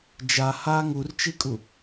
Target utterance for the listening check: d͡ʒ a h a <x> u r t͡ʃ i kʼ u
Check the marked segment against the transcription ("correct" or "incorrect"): incorrect